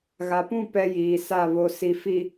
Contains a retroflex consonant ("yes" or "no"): no